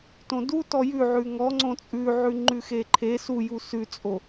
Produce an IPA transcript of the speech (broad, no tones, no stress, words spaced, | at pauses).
tõdutɔ jʉ ʕʉŋɔ ŋ͡ǀõt͡sʼʉʕʉ ŋ͡ǃʉxeǃʰe suju sʉt͡sʼo